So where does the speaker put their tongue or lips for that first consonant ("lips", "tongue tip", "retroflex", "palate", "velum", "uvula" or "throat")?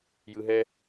palate